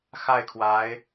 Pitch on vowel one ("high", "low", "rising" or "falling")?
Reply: falling